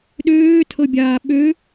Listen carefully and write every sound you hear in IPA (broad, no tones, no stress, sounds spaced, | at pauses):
ɗ øː tʰ ɤ bʲ aː ɓ ø